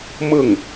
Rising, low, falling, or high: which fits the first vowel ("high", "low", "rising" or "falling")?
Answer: falling